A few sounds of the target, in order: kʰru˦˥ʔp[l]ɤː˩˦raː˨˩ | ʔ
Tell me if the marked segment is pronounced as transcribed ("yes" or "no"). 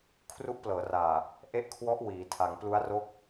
yes